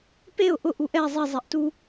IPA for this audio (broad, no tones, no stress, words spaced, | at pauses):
peʊ̯ ʔʊ ʔuʔɛ zˤi zˤɛʔtu